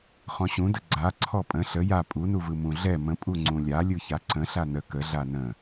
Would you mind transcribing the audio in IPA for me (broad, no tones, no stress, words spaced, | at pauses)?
χɔ̃ɕũdə ɡ͡ǀaǀʰɔ pʼə̃ ɬə ja pʼunuvɯ mũɮɛ mə̃ pʼuŋ͡ǀũlʲa lʲɯçaǀə̃ ɬanə kə ɮanə̃